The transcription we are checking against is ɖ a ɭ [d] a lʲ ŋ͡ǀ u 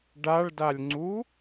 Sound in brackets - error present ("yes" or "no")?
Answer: no